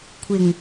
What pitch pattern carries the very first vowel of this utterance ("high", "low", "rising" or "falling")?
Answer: low